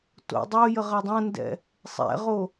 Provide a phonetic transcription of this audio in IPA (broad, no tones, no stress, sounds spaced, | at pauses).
t o̰ dˤ o j ə ʁ ɐ dˤ ɐ̃ n d ɛ̰ | sˤ ɛ̰ ʁ o